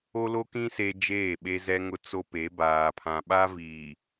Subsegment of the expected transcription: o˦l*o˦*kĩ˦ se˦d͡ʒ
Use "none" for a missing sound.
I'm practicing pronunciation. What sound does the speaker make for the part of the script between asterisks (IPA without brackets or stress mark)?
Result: o˦